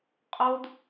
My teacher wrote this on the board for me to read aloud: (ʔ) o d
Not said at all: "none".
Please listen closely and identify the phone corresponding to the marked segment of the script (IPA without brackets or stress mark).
qʼ